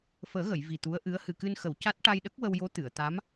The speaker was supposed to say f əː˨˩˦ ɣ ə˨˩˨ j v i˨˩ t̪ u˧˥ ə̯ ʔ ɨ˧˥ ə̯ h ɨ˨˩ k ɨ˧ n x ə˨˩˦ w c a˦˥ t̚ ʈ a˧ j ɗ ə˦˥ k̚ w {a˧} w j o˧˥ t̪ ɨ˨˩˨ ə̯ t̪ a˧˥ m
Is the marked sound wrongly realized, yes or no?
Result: yes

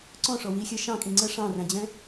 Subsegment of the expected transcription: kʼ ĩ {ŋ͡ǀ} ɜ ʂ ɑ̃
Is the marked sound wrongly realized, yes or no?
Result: no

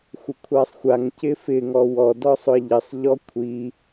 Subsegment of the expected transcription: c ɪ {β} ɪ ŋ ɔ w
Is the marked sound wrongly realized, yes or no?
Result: yes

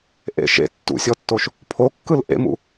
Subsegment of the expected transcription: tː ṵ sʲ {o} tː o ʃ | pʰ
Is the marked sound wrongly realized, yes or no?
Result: yes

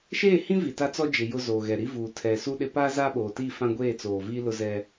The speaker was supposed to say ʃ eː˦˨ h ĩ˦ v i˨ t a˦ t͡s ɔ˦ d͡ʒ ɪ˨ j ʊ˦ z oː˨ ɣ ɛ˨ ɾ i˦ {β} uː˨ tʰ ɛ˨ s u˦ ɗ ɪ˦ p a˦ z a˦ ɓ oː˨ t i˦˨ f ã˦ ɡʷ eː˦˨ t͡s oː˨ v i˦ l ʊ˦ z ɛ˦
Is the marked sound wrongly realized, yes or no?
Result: yes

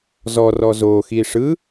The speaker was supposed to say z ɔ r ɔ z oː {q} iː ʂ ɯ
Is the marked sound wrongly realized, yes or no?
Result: yes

